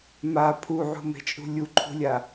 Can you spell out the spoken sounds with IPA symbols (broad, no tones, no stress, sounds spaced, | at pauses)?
m a pʰ u ʕ ṳ m e̤ t͡ʃʼ ṳ lʲ u ǃʰ ṳ lʲ a